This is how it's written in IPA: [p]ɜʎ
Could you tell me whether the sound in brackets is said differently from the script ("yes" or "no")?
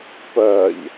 no